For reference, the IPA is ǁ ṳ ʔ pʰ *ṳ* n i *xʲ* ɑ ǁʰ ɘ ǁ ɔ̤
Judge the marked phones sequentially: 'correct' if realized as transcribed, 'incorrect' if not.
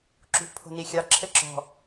incorrect: o̤, correct

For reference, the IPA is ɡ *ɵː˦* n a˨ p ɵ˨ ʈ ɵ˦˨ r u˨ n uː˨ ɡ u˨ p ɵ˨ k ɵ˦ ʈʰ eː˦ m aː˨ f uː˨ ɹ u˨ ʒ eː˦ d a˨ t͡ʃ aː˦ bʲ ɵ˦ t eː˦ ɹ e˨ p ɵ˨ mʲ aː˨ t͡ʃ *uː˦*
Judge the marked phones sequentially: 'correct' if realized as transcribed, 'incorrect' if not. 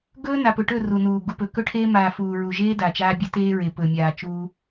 correct, correct

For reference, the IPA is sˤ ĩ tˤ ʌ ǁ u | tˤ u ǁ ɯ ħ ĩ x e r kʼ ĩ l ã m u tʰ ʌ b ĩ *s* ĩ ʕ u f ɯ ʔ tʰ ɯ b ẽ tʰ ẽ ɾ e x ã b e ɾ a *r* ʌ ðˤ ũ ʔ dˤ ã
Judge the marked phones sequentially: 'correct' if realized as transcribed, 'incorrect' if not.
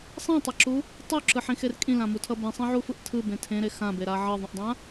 incorrect: sˤ, incorrect: ʕ

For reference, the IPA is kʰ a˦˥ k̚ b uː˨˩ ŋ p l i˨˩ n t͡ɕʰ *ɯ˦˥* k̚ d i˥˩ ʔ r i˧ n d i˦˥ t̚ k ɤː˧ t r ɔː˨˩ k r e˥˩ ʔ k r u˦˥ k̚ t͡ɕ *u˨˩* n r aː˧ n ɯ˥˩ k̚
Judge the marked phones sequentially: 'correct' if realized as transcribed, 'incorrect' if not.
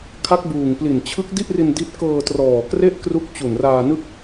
correct, correct

